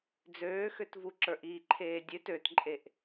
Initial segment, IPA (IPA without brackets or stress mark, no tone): d͡z